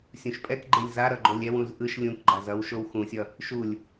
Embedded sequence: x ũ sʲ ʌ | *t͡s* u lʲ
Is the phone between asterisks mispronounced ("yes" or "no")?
yes